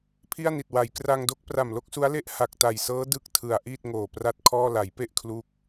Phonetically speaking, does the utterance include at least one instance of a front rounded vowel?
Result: no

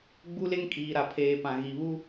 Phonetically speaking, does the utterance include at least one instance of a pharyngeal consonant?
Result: no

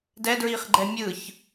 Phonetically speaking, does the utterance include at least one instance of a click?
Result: yes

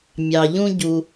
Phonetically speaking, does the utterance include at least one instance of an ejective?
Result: no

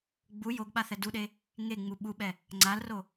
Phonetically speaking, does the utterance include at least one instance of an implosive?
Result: yes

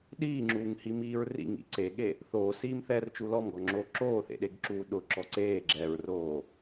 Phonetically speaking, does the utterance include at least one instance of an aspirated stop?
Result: no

